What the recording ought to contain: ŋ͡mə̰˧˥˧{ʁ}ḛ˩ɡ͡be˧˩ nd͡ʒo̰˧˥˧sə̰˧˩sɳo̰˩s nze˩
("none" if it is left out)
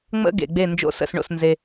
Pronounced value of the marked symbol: ɡ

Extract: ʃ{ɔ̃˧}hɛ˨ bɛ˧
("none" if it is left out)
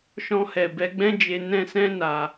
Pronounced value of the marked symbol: ɔ̃˧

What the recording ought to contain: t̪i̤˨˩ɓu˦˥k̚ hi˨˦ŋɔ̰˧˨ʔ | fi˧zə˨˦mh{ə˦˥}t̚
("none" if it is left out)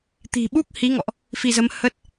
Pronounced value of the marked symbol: ə˦˥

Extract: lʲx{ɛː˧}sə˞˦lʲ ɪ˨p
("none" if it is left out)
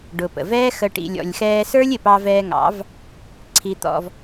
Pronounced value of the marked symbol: ɛː˧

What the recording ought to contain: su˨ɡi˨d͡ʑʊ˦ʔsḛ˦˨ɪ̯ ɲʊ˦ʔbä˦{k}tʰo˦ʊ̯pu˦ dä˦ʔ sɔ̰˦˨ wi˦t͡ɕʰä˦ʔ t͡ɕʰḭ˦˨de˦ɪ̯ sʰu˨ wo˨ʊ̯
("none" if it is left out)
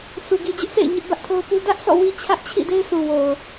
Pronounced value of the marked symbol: ʔ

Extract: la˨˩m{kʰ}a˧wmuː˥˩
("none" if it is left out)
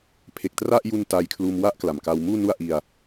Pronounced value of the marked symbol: k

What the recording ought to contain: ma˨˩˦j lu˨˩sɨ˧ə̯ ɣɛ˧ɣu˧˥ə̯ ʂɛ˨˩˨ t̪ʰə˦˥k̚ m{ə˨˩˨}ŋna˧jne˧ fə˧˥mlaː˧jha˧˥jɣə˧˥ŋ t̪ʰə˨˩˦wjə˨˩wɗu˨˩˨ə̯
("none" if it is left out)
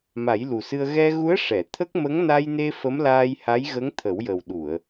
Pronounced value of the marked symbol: ə˧˥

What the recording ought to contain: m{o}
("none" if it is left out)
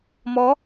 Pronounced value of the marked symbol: ɔ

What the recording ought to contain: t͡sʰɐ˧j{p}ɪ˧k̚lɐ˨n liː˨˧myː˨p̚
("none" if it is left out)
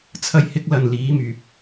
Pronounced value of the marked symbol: h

